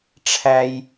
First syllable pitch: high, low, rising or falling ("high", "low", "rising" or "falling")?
high